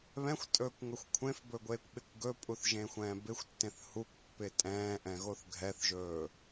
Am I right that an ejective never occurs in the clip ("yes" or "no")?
no